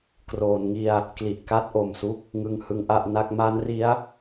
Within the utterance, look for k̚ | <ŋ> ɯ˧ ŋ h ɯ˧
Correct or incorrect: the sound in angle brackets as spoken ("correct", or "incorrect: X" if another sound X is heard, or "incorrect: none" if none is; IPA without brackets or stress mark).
correct